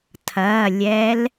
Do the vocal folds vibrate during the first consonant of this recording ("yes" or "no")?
no